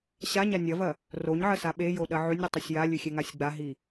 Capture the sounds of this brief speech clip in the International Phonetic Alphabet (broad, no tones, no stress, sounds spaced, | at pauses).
ɕ a ɲ a nʲ ɐ v ɐ | r o ɲ ʕ ɐ s a ɓ e j o ɗ ɐ ʕ ʉ nʲ ɾʲ u tˤ u sʲ j a lʲ ʉ xʲ e ŋ a sʲ ɡ͡b a ɦ i